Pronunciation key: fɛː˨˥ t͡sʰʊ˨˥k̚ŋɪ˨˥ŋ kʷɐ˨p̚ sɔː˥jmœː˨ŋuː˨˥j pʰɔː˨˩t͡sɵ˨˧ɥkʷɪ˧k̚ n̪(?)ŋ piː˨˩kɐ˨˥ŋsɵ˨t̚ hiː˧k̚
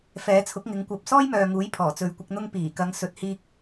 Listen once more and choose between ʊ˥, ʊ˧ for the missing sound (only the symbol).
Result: ʊ˧